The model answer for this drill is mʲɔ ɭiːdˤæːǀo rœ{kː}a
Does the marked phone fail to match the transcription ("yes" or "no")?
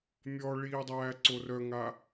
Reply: yes